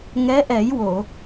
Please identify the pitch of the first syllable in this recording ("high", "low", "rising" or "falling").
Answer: rising